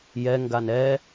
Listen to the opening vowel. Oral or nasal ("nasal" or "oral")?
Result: oral